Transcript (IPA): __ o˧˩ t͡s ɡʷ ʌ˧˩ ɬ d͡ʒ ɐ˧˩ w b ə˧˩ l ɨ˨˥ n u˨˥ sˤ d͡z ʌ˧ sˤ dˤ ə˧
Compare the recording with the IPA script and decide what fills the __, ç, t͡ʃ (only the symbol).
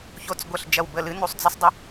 ç